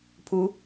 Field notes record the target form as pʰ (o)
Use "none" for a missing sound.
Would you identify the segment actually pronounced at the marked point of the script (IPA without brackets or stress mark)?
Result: u